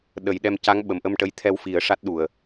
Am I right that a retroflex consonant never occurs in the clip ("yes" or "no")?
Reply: no